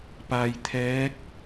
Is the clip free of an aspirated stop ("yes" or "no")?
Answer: no